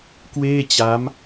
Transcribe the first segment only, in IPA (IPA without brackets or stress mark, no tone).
k